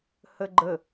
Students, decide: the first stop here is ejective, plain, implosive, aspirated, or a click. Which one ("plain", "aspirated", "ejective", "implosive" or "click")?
click